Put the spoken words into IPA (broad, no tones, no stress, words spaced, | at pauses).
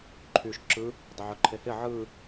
ǃʰyʃ ǁɯ | dˤɪʕɵǃʰehɪ ʕɯ